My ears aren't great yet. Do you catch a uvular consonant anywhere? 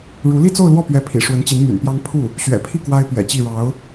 no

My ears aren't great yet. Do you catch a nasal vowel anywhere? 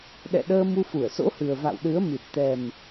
no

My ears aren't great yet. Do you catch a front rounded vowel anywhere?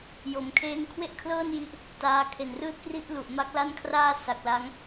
no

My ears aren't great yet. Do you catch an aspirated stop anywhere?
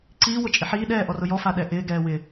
no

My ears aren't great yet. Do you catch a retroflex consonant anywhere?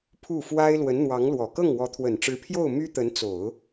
yes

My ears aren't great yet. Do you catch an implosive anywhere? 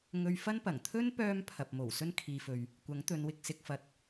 no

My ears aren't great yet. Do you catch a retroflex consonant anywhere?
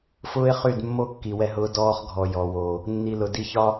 no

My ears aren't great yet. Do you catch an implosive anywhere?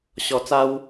no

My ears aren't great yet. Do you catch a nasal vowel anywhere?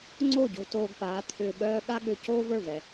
no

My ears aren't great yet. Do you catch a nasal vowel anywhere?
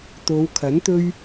no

